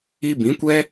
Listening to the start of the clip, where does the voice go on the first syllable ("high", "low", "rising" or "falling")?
high